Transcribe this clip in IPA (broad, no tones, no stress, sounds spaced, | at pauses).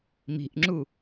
m i̤ ʔ ŋ͡ǁ u